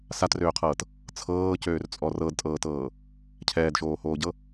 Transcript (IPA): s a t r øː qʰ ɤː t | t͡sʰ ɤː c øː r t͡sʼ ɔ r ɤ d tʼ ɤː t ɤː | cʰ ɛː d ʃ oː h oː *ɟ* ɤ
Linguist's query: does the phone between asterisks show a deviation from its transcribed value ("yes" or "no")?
no